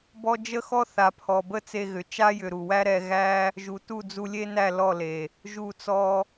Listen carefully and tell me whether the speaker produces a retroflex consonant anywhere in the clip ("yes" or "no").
no